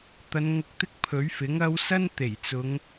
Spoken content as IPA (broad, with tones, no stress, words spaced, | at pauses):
t̪ɐ˨˧nŋʊ˧k̚t̪ɪ˥k̚ pʰɵ˨˥ɥfɪ˨˥ŋɐ˥w sɐ˥nt̪e˨˩jt͡sʊ˨˧ŋ